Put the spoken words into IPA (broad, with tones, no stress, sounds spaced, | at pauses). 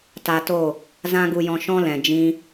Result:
t a˧ t o˦˨ | z ã˦ ɡ u˧ j ɔ̃˧ ʃ ɔ̃˦ l ɛ̃˨ d͡ʒ ĩ˦